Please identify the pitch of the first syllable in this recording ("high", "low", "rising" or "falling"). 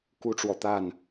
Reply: high